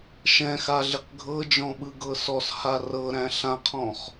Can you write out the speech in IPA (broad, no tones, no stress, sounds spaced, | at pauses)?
ʃ ɛ̃ x a ɮ ɪ q ɡʱ ɤ d͡ʒ ɔ̃ ɓ ɯ ɡ ɤ s ɔ s h a r ɤ ɾ æ̃ ɬ ã qʰ ɔ̃ χ